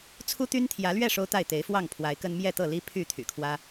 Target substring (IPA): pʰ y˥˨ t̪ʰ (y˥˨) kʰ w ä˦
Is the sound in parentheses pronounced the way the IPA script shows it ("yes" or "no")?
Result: no